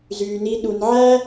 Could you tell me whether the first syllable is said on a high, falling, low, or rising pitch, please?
low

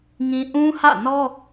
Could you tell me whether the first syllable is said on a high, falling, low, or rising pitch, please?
high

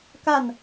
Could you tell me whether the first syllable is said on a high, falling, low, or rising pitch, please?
falling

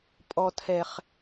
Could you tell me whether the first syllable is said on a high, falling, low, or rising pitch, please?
low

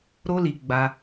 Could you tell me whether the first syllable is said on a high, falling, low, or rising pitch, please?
high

